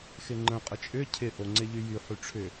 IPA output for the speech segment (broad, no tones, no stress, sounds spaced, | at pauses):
x ɪ ŋ͡ǃ ə̃ qʼ ə t͡ʃʼ ʏ cʰ ɪ ʔ o ŋ͡ǀ ɪ ʎ y j y ħ y ʈ͡ʂʰ ʏ